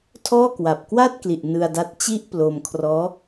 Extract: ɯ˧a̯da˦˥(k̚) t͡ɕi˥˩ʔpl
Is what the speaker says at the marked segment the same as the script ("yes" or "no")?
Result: no